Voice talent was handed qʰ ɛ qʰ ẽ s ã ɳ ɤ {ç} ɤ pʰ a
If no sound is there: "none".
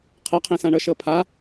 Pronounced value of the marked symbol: ʃ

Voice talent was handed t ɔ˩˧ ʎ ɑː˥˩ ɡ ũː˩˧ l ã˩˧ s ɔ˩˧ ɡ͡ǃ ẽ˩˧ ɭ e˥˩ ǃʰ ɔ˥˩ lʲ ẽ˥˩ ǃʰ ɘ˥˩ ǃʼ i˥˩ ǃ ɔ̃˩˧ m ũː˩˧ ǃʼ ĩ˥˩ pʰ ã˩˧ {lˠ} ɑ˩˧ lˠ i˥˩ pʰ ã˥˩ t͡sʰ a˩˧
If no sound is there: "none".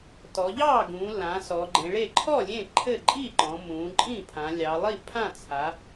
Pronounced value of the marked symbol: lʲ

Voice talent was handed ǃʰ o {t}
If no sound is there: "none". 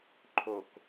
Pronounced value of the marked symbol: k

